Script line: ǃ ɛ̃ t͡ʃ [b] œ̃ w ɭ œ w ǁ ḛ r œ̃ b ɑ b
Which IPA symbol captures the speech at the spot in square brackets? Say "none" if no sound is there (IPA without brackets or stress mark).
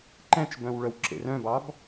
b